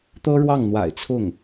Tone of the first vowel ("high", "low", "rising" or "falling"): high